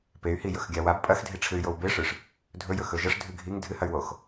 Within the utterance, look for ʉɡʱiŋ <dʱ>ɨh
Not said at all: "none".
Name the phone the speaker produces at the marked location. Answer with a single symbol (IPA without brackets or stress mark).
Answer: dʱ